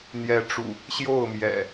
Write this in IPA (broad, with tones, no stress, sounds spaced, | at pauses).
n̪ j ɛ˨˦ ʈ͡ʂ ṵ˨˩ | ɕ j o˥˨ ʊ̯ m j ɛ̰˨˩